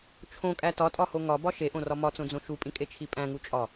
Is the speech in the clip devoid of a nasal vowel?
no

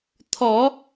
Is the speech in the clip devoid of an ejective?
yes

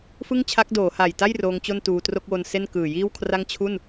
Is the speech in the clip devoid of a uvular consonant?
yes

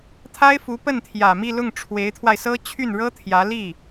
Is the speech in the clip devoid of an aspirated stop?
no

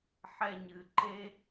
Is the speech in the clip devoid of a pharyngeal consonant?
no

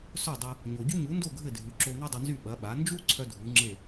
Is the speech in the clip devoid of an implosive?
no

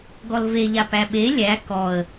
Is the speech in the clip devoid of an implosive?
no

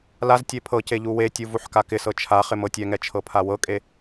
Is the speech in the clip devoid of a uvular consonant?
no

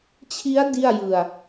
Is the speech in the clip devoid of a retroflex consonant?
yes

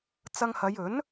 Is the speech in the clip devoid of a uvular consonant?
yes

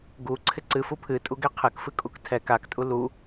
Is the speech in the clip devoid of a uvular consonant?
no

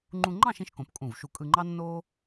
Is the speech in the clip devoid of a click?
no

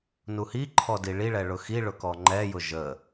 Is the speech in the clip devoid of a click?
no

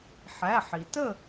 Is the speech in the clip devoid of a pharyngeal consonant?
no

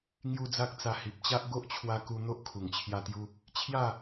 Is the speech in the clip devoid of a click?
yes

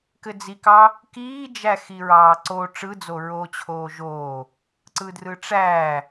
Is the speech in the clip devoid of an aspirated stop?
no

